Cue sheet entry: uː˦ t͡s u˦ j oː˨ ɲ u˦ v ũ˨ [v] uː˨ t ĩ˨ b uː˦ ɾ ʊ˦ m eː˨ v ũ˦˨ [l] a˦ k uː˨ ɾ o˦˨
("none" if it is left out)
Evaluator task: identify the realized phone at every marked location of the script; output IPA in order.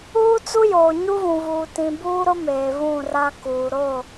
v, r

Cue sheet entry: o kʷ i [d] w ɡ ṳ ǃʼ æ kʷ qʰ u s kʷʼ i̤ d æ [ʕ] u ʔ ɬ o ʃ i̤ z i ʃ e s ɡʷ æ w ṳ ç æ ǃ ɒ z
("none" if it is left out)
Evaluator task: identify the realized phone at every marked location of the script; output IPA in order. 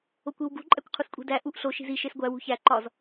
none, ʔ

